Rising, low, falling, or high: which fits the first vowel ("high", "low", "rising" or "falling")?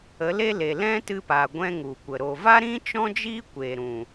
rising